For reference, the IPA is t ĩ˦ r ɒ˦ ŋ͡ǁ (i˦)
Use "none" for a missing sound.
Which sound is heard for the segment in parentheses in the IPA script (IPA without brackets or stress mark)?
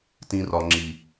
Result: i˦